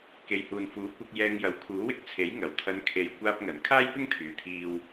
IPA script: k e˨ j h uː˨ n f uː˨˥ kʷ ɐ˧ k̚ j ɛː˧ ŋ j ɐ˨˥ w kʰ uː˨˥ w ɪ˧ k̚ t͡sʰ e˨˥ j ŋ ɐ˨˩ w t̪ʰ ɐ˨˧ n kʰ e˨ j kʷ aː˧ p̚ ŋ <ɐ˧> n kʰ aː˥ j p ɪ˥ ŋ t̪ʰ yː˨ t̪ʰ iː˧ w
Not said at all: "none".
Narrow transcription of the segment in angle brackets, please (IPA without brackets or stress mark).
ɐ˨˩